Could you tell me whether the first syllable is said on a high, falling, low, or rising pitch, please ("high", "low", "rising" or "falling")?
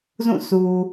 falling